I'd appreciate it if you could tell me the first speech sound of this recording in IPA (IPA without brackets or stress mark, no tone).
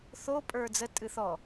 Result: θ